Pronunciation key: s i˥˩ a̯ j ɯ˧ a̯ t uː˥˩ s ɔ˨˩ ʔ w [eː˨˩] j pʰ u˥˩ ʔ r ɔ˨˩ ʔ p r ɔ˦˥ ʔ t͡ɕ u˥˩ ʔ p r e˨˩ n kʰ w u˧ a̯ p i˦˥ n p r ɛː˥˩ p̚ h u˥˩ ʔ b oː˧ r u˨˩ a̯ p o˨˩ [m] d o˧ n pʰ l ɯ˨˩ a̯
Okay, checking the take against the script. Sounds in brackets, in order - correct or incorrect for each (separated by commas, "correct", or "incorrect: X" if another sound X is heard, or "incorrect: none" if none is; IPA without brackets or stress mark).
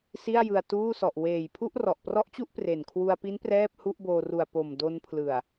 correct, correct